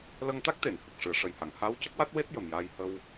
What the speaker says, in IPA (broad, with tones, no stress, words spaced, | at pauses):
lə˧ŋt̪a˦˥k̚t̪e˨˩˨n hə˨˩k̚ ʂɨ˨˩˨ə̯ʂə˨˩jha˨˩˨ŋ ha˧˥w cə˦˥k̚wa˦˥t̚we˦˥t̚ jə˨˩mjaː˧j hə˧w